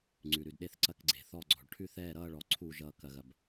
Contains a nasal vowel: no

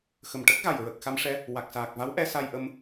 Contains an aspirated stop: no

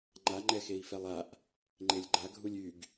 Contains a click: yes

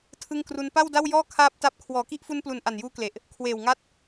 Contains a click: no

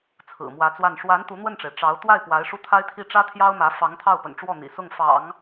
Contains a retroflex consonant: yes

